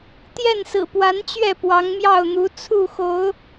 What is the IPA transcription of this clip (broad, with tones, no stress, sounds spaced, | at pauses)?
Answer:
t̪ j ɛ˥˨ n s ɹ̩˨˩ p w a˨˦ n t͡ɕ ɥ ɛ˥˨ p w ɑ˨˦ ŋ m j ɑ˥˨ ʊ̯ n̪ u˨˦ t͡sʰ u˥˨ x o˨˦ ʊ̯